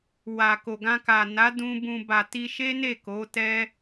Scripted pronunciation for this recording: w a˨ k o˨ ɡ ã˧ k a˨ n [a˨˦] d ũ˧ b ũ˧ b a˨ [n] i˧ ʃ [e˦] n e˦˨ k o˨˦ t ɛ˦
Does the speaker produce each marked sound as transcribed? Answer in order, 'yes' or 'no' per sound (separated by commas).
yes, no, yes